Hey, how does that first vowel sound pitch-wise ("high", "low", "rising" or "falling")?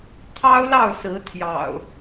high